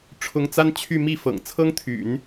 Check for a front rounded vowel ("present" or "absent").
present